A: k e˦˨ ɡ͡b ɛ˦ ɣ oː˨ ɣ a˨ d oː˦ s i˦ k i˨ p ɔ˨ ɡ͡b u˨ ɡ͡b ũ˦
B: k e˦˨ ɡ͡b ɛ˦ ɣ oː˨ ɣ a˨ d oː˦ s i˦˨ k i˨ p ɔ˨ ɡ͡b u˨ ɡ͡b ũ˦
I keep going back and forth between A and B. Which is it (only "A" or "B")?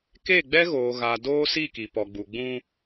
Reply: B